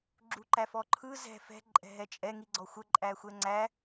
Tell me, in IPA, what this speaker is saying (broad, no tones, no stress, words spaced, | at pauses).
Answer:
ɡ͡ǁuǃæfɔǃʰɯ zɛ̤ fɛ̤ ǃʼɛ̤ɦɛt͡ʃʼɛ ŋiɡ͡ǀɔxʷə ǃʼæxʷɛŋ͡ǀæ